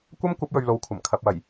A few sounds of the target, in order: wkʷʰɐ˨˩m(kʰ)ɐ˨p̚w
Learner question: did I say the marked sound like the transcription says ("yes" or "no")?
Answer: yes